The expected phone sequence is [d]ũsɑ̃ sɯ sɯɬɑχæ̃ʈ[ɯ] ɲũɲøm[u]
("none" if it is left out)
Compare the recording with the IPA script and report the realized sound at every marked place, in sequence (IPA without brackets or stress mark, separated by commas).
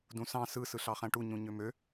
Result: d, u, ø